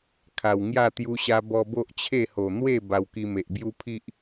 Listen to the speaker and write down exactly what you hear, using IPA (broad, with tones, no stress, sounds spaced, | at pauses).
kʰ a˨˩ w ŋ j a˥˧ t̪ j u˧ ɕ a˧ b ɔ˧ b o˦ ʔ t͡ɕʰ e˥˧ h o˨˩ n̪ w e˥˧ b a˧ w k i˧ m e˨ ʔ b j u˦ pʰ i˦ ʔ